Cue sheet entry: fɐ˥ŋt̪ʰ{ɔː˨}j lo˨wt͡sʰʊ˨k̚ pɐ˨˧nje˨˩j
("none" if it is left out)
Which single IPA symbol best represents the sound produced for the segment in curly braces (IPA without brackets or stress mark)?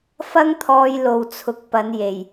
ɔː˧